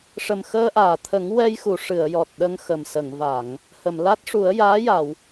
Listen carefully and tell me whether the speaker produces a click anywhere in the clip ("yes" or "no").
no